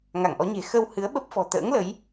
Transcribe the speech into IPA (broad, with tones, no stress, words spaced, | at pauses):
ŋa˧˩ŋʔɔ˨˦ɲe̤˨˩ xə˧whɨ˨˦ə̯ɓə˦˥p̚fɔ̤˨˩ t̪ə̰ː˧˥ŋlə˨˦j